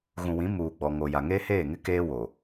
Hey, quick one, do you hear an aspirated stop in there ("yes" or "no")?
no